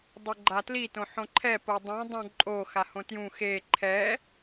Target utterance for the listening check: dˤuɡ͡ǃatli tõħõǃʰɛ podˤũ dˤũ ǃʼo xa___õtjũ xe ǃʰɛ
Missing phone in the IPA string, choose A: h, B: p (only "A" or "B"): A